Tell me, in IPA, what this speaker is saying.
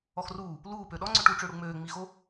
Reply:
ɔ x r uː | l uː p ø ɗ ɔ ŋ͡ǀ ø ʈ u ʈ͡ʂ ø ɽ u ŋ͡m øː ŋ͡m i x o

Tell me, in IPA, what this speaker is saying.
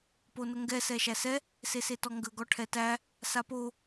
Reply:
p o n ə ŋ ɡ ɛ s ɛ ʃ æ s ɛ | s e s e t ɔ ŋ ɡ ə ɡ ɔ ʈʰ ɛ t æ | s a p o

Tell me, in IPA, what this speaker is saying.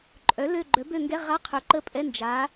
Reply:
ǃʼ œ˩˥ l ø˦˨ ɡ͡ǃ œ˩˥ b ø˦˨ ŋ ɡ ɛ˧˥˧ ʁ a˧˥˧ qʰ ø˩˥ ǃ ə˦˨ pʼ ɛ˧˥˧ n d͡ʒ a˩˥

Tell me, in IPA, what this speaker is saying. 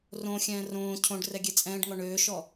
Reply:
r õ xʲ ɛ̃ː r õː cʰ õ ɖ r ɛ ɡʲ e t͡sʼ ɛ̃ː ɖ ŋ ɔ ɳ øː ʃ ɔ

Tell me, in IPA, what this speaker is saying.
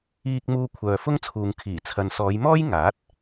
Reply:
iː˧ k̚ m uː˧ kʷʰ œː˨ f ʊ˥ ŋ t͡sʰ uː˨ ŋ kʰ iː˨˩ t͡sʰ ɐ˨ n s ɔː˨˧ j m ɔː˥ j ŋ aː˨˥ t̚

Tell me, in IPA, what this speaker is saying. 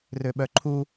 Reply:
r ø ɓ œ ǃʰ u

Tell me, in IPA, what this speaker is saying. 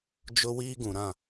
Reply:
d͡ʒ ʊ˦ w iː˦ ɡ ũ˨ ɾ ã˦˨

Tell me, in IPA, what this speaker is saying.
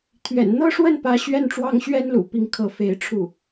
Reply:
t̪ʰ ɥ ɛ̰˨˩ n n̪ ɤ˥˧ ʂ w ə˥˩ n p ä˥ ɕ ɥ ɛ˥˩ n ʈ͡ʂ w ɑ˥ ŋ ɕ ɥ ɛ˥ n l ṵ˨˩ p i˧˥ ŋ kʰ ɤ˧˥ f e˧˥ ɪ̯ ʈ͡ʂʰ u˥˩

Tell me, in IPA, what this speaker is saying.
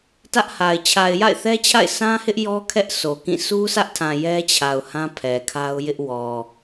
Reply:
t ä˦ ʔ h a˨ ɪ̯ t͡ɕʰ a˨ ɪ̯ j a̰˦˨ ɪ̯ θ ɛ˦ t͡ɕʰ a̰˦˨ ɪ̯ s ã˦ h ɪ˦ ʔ j ɔ˦ kʰ ɛ˦ ʔ s o˨ k ĩ˦˨ s u˦ s ä˦ ʔ tʰ ã˨ j ɛ˦ t͡ɕʰ a˨ ʊ̯ h ã˦ pʰ ɛ˨ kʰ a˦ ʊ̯ j ɪ˦ ʔ w ɔ˨

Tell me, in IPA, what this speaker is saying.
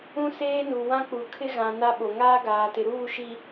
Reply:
ũ˦ s eː˦ n u˨ w ã˦ k͡p u˨ kʰ ɪ˦ ɣ ã˨ n a˦ ɓ o˨ ŋ aː˦ ɡ aː˨ t ɪ˨ ɾ uː˦˨ ʃ i˨

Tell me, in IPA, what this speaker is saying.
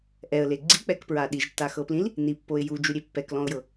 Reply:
ʔ ɛ ə̯ l e ɡ͡ǀ i k͡p ɛ k p ɹ a ɗ i ʒ tː a x ɤ p l ĩ l | n i pː o ɪ̯ j u d͡ʒ u ɾʲ e pː ɛ k l ɔ̃ ʊ̯ j ɤ

